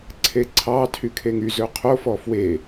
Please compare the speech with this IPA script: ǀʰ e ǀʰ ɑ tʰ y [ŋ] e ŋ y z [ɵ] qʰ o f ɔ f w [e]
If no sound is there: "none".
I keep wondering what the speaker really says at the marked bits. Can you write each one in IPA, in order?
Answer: kʰ, ɵ, e

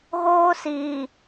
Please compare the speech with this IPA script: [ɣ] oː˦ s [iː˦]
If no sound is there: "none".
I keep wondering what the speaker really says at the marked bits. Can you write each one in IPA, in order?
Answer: ɣ, iː˨

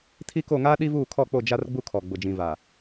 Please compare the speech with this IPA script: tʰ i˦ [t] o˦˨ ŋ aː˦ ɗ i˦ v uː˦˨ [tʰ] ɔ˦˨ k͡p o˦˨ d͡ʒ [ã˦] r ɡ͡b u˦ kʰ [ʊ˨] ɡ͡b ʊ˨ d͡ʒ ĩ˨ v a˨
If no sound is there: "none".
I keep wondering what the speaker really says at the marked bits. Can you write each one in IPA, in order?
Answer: k, kʰ, a˦, ɔ˨

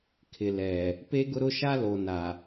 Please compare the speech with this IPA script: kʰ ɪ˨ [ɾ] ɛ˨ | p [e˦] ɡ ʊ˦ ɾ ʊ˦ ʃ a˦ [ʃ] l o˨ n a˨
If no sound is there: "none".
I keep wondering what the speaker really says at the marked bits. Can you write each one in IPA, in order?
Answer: l, e˦, none

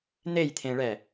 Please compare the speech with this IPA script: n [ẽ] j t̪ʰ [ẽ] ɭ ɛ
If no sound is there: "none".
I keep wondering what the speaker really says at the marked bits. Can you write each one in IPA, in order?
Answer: e, ẽ

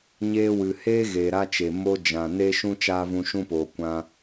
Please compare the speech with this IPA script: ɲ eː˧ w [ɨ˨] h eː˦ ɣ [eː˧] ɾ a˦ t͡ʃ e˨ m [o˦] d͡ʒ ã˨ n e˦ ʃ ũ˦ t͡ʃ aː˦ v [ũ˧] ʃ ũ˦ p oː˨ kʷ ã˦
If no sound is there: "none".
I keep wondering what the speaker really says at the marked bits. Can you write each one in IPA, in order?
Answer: ɨ˨, eː˨, o˦, ũ˧

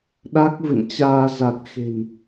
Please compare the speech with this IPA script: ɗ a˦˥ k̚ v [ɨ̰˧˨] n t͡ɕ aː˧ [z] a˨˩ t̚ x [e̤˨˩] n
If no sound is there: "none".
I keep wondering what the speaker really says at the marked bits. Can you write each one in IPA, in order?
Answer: ɨ̰˧˨, z, e̤˨˩

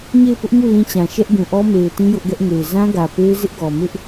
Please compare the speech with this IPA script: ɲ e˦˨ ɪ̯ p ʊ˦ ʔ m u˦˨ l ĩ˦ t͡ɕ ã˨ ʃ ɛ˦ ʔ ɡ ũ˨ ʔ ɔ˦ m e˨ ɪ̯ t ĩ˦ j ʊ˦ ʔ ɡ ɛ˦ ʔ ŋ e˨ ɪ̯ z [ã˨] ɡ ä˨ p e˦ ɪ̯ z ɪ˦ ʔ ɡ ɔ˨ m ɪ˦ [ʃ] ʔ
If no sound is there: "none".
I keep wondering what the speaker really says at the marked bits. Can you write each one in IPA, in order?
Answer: ã˦, none

